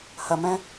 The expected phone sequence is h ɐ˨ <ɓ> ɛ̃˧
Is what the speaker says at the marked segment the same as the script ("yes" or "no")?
no